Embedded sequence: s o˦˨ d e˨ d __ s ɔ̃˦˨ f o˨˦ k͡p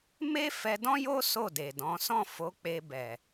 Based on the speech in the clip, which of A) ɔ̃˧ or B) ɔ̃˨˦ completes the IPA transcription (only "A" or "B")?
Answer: B